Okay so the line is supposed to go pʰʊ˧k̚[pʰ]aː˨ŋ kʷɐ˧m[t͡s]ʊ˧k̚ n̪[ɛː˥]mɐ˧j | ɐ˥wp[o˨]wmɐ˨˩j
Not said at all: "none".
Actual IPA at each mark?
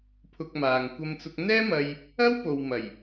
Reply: m, t͡s, ɛː˥, o˨

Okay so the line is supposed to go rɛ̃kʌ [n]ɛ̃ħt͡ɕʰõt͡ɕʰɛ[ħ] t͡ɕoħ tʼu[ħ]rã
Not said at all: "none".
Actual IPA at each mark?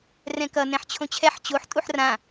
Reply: n, ħ, ħ

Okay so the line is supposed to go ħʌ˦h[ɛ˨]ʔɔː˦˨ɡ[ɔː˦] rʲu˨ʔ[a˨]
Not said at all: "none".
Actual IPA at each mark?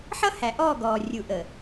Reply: æ˨, ɔː˨, ə˨

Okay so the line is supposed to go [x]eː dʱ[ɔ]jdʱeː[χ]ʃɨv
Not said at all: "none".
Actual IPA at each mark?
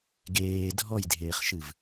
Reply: ɡ, ɔ, χ

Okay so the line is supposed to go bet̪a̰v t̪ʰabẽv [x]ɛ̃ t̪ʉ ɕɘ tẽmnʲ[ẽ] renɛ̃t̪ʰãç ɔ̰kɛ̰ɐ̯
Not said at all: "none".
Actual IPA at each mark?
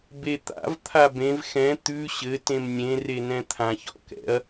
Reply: x, ẽ

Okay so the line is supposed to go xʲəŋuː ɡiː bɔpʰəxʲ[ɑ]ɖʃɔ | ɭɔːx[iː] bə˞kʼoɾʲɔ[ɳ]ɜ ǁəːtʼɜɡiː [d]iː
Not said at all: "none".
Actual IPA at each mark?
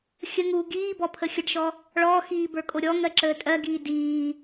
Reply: ə, iː, ŋ, d

